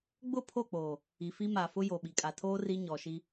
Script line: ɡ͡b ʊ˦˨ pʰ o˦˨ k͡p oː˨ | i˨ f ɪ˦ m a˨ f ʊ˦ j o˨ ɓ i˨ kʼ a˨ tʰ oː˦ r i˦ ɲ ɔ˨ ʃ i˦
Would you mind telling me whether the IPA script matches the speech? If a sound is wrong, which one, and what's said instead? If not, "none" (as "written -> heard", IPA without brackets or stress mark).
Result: ɪ˦ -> i˦